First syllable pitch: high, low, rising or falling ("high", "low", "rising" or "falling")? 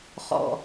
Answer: low